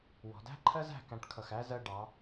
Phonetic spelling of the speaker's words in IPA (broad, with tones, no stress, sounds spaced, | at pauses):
w ɔ̤˩˧ d æ̤˥ ǃʰ ɜ˥ z æ̤˥˧ k æ̃˧ ʈ kʰ ʌ˧˩ x æ˥ z ɜ˥˧ ɖ ɑ˩˧